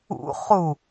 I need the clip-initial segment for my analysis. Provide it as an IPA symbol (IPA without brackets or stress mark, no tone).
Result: ṵ